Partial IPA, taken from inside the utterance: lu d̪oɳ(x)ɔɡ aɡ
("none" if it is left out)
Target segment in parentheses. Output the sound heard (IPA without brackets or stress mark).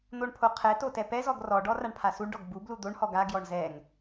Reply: h